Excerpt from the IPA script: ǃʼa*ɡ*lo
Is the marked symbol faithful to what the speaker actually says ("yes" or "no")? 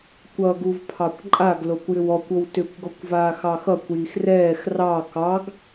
yes